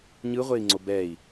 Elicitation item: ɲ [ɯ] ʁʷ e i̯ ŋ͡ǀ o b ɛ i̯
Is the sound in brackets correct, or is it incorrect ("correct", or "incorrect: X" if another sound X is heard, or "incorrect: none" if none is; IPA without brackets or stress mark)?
correct